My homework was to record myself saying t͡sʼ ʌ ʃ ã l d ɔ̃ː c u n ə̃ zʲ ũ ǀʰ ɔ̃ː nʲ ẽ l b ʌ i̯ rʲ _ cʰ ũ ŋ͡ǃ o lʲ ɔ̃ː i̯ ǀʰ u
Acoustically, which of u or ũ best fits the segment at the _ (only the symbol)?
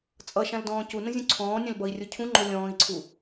u